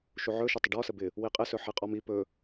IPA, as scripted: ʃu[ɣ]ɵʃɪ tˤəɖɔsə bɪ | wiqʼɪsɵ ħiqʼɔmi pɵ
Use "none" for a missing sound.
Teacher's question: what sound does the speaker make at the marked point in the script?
ʕ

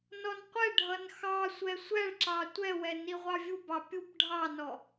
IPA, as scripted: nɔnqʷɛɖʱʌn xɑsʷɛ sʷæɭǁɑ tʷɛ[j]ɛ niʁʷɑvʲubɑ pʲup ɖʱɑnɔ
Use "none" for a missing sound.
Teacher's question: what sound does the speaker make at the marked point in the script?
w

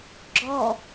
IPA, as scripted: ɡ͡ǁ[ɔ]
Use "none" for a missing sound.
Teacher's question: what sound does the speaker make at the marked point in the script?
ɔ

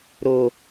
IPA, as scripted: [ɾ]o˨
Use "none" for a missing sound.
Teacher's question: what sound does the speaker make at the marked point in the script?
ɾ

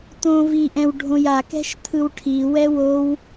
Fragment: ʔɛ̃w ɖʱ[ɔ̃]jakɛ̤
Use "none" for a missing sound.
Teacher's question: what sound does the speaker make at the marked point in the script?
õ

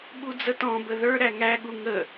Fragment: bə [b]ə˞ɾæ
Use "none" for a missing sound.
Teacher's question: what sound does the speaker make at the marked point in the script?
ð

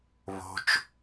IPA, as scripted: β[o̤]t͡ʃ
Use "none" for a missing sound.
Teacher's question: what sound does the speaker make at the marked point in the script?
o̤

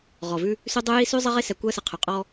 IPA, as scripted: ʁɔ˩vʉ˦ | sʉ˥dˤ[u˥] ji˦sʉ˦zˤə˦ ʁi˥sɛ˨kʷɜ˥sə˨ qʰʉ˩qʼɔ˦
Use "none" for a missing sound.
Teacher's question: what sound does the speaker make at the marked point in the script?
u˥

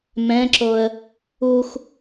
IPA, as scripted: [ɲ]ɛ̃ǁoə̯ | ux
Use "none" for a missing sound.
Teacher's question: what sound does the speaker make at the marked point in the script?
m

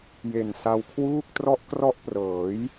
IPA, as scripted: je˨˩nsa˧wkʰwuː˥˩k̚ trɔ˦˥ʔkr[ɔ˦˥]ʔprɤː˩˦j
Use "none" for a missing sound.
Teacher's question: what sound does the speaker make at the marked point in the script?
ɔ˦˥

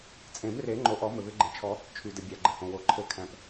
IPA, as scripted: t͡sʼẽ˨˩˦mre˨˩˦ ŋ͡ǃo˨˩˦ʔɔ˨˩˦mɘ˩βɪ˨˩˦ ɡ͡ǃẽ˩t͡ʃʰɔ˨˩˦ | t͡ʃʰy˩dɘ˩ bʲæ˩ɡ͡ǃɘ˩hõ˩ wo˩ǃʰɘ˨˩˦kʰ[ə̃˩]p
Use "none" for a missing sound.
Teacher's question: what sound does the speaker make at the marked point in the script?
æ̃˩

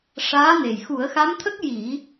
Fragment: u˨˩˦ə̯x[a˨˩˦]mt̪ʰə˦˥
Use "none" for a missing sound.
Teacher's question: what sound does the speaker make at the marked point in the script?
a˧˥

